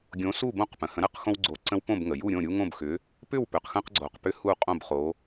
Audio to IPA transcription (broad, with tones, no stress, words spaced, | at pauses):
ɡʲõ˨˥su˥˨bõ˥˨q pə̃˩hə̃˨˥ ɾə˩q xõ˦wɡ͡ǀo˨˥ǀə̃˦w põ˥˨bŋə˩ju˥˨ɾʲõ˥˨ ɾʲu˦ ŋõ˥˨bxʏ˨˥ | pʏ˥˨w pʏ˩qxə̃˦qɡ͡ǀo˩qpʏ˦ hu˥˨qʼõ˥˨bχo˨˥